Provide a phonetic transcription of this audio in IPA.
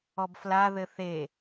ɔbfla ðɘθe

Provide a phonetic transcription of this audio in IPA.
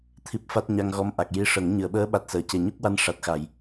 t̪ʰi˦˥p̚ fa˦˥t̚ ɲa˧ŋɣɔ˧˥mʔa˨˩k̚ ji˧ʂə˨˩˦ŋ ɲɨ˨˩˨ə̯ɓəː˧˥ɓa˨˩t̚səː˨˩˨ ce˨˩ɲu˦˥k̚wa˧n ʂa˨˩t̚xa˨˩˨j

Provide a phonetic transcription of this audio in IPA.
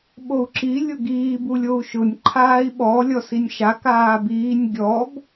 ɓou̯ǁi lʲʊɡiː bulʲou̯ʃʊnʲ ǃʰaːi̯ɓɔ lʲɔsinʲʃa kaːbiːnʲ ɡʲɔb

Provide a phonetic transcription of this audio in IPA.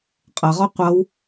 qʼʌʁɔ qʷʌw

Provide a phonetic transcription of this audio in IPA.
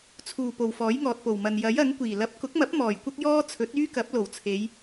t͡sʰuː˨˩po˨˩w fɔː˨˥jŋɔː˨t̚po˨˩wmɐ˨n jɐ˨˥jɐ˨˥ŋ kʷiː˨˩ lɐ˨˥p̚kʊ˨˥k̚mɐ˨˥p̚ mɔː˨˩jkʷɐ˥k̚jɔː˥ t͡sʰɵ˨˥t̚yː˥kɐ˨˥p̚ lo˨˩wt͡sʰe˨˧j

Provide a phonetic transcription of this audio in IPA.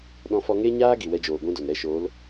ɗɔ̃˧fɔ˧ ŋe˧ɲaː˧ ɡi˨wɛ˧d͡ʒoː˨ ɡʷĩ˦do˨n ɾɛ˦˨ʃoː˨˦l

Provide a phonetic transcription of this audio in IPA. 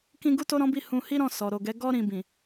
kĩ˦ ɡu˦to˦ɾɔ̃˦bi˦˨ hũ˧hi˦ɾɔ̃˦˨ sɔ˨ɾo˨ɡɛ˨˦ ɡɔ˦ɾĩ˧ bĩ˨

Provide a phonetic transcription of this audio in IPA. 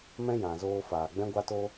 mɛ̃˦jã˨zoː˧ faː˨ɡ͡bɛ̃˦ɡʷa˦to˦

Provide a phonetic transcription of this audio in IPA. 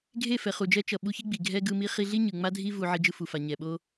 ɡʱe˦˨fɛ˨χu˨d͡ʒɛ˧ t͡ʃʌ˨ ɓu˧çi˦ɡ͡bi˨ ɡʱɛ˦ɡɯ˧mi˦ χi˧ɮi˦ ɲɯ˨ŋ͡ma˦dʱi˦ vu˧ ʕi˧d͡ʒɯ˧fu˨fa˨ ɲɛ˨ɓo˦

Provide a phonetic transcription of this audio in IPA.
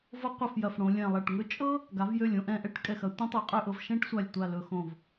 vɤ˥qʷɐ˥˧fjɐ˧˩fɽõ˩˧ lʲɛ̃˧˩lˠɐ˧˩ʈŋɵ˥ t͡ʃʼɤ˥ | ɡa˩˧vjø˧˩lʲ õ˧ʔɛ̃˧˩ʔɛ˥˧ʈ kʼɛ˧˩xɐ˩˧ tʷɛ̃˥tˤɤ˧qʼø˥˧ʔɤ˧v ʃɛ̃˥ʈsʷa˧˩lʲtʷa˧˩ lɵ˧xõ˧˩v

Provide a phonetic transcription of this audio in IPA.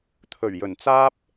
t̪ʰɵ˨˩ɥjɵ˨˩nt͡saː˥p̚

